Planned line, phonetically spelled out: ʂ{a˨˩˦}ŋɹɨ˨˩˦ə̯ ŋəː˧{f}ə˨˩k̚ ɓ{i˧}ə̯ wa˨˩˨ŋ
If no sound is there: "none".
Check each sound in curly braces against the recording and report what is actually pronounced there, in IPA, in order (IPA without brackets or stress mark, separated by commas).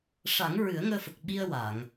a˨˩˦, f, i˧